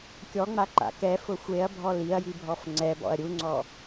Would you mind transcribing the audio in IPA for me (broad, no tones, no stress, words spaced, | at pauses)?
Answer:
kʲɔŋ͡ma ǃa̰kɛfʊ xʷeɐ̯bʱɔ liɐ̯ji bʱɔfŋ͡ǀɛbɔ̰ɐ̯ ɾʲuŋ͡ǀɔ